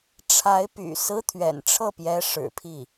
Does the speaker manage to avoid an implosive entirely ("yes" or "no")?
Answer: yes